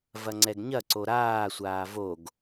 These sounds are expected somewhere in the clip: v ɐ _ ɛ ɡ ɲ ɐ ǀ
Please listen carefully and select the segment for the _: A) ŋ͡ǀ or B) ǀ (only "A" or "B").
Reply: A